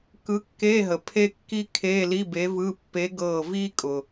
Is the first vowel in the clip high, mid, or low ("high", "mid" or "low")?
high